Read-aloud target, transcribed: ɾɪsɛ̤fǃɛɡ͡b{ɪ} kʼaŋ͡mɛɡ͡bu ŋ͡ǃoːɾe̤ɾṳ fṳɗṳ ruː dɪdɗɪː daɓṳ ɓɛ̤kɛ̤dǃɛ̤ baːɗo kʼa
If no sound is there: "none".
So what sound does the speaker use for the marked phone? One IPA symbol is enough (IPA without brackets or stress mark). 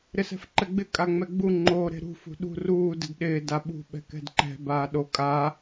ɪ